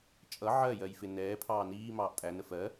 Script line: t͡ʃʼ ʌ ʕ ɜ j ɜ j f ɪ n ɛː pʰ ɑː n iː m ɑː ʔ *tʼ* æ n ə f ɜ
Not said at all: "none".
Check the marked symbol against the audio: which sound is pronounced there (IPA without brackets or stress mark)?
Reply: tʼ